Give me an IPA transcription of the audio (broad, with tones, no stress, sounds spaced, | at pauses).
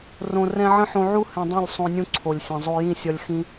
r õ˨ r ɛ̃˧ ʕ ə̃˦ ħ õ˧ ʕ u˦ h ɛ̃˧ dˤ ũ˦˨ lʲ sˤ õ˧ nʲ ũ˦ ǀʰ o˨ lʲ sʲ ə̃˨ zˤ o˧ j ĩ˦˨ sʲ ɒ˧ lʲ x ĩ˦